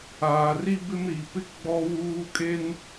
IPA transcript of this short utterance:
aː˨ r i˦ b ɪ˦ m ɾ i˨ p ɪ˦ ɡ͡b ɔ˦ w uː˦ kʼ e˦ n

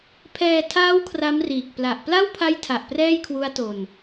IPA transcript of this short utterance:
pʰ ɛː˧ tʰ aː˦˥ w kʰ r a˦˥ m r iː˨˩ k̚ p l a˨˩ ʔ p l a˥˩ w pʰ a˦˥ j tʰ a˨˩ ʔ p r ɛː˥˩ j kʰ w u˦˥ a̯ t o˧ n

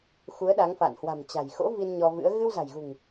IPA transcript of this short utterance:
x u˨˦ ə̯ ɗ a˨˦ ŋ f a̰˧˨ n h w a̤˨˩ m t͡ɕ a̤˨˩ j x o̰˧˥ v i˧ n ɲ ɔ˧ v ɨ̰˧˥ ə̯ ɣ ɨ˧ w z a̤˨˩ j ɣ ṳ˨˩ ŋ

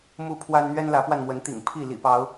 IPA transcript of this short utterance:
m u˦ pʰ w a˦ n n̪ ɥ ɛ˦ n l ä˨˦ p w a˧ n m w ə˨˦ n t̪ ḭ˨˩ ŋ pʰ i˥˨ l ḭ˨˩ p ɑ˨˦ ʊ̯

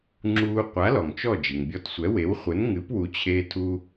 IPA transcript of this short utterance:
ŋ͡ǁ uː˧ qʷ a˩˥ l ɔ˩ ŋ t͡ʃ ɔ˥˩ d͡ʒ i˩ ŋ bʲ ɔ˧ t sʷ ɛ˩˥ w e˩˥ w χʷ ɘ˩˥ n ŋ ɨ˩˥ p w u˩˥ t͡ɕʰ e˧ tʰ u˧

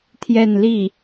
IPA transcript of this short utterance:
t̪ʰ j ɛ˥˧ n l i˥˩

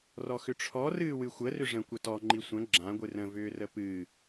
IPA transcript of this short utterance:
r ɔ x ʏ ʈ͡ʂʰ ɔ r ɨː w ɨ xʷ ə r ʏ ʐ ə̃ kʷ ə t ɔ ŋ͡ǃ i sʷ ə̃ ɡ͡ǁ ã ɡʷ ɨ r ə̃ v ʏː r ə p ɨ

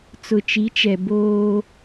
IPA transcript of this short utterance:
t͡s ʊ˨ t͡ʃ i˨˦ t͡ʃ ɛ˨ b oː˦

